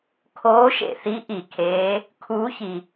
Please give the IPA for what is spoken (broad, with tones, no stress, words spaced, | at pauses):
kʰoː˧˥ʃḛ˨θi˧˥ ʔi˨kʰeː˧˥ | kʰuː˧˥çi˨